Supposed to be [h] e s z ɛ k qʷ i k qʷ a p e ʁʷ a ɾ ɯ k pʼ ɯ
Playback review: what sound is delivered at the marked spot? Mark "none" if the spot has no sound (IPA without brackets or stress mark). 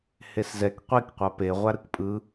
h